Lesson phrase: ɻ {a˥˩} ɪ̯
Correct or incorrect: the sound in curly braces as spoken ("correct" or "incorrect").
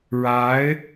incorrect